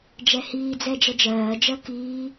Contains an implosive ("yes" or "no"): no